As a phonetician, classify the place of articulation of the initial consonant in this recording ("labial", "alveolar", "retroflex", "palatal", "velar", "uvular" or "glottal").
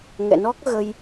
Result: velar